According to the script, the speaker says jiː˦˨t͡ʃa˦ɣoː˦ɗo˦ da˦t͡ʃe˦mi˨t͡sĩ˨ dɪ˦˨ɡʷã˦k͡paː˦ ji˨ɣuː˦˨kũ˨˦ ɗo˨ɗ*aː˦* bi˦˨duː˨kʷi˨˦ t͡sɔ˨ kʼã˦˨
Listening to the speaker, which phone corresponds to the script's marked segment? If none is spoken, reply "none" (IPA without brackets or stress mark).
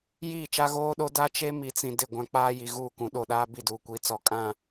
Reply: aː˦